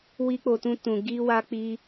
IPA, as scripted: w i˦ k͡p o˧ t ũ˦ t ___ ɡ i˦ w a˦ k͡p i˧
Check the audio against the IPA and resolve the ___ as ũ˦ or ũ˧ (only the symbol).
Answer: ũ˧